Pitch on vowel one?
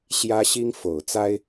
high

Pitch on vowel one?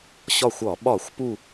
falling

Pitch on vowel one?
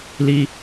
high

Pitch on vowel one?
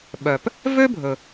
low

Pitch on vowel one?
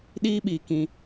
high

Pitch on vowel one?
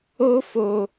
high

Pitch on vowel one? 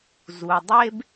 low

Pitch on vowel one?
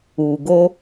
low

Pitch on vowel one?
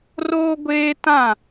high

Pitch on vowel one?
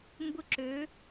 falling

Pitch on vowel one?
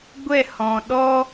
falling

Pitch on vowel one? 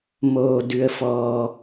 high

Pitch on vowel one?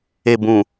low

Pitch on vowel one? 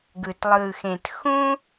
low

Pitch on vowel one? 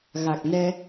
low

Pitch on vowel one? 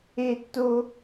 high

